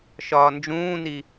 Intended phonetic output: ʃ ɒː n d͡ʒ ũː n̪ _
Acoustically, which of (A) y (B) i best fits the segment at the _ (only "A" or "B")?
B